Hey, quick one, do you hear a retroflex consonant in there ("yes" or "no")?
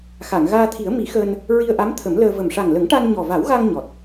yes